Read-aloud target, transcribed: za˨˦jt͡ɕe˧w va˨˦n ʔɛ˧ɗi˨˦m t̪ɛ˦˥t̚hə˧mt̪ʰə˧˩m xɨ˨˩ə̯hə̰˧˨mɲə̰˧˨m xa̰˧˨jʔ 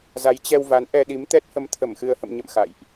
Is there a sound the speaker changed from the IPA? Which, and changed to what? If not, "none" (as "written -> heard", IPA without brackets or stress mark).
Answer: e˧ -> ɛ˧